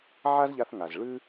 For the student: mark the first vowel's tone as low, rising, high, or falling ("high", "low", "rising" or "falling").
high